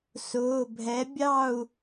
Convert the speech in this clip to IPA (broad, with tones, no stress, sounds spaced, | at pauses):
s ʊː˩˧˩ bʱ ɛ˨˥ bʲ ɑ˥˨ u̯